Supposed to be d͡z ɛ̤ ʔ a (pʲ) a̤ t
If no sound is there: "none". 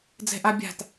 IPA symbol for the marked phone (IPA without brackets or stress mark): bʲ